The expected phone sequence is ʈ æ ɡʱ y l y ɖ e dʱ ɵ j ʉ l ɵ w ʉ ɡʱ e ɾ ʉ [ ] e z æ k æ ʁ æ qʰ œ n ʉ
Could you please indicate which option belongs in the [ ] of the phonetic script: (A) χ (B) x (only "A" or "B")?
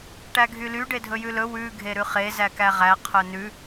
A